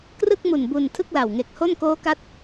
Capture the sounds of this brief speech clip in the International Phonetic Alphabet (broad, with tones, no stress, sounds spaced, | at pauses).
k r ɯ˥˩ k̚ m u˨˩ n b u˧ n tʰ ɯ˥˩ k̚ l a˨˩ w ŋ e˨˩ k̚ h o˥˩ n k oː˦˥ k a˦˥ t̚